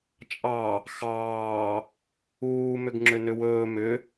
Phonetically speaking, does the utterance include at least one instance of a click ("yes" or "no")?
yes